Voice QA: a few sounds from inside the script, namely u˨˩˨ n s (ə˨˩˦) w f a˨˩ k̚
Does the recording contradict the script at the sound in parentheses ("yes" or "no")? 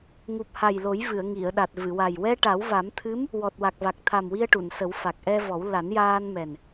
no